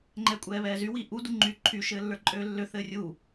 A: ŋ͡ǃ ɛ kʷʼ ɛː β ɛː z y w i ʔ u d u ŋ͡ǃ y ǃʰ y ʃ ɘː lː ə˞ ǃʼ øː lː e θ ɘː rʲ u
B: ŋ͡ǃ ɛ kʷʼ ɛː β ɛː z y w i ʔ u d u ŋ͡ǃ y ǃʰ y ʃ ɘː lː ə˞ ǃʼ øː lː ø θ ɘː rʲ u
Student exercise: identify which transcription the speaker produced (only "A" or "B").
B